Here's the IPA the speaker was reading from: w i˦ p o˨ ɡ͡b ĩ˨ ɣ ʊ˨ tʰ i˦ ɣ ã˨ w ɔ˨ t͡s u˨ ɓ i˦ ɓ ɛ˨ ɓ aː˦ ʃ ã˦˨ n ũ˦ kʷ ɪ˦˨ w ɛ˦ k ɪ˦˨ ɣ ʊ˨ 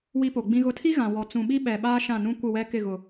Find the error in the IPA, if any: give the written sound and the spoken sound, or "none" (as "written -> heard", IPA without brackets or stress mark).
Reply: u˨ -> ũ˨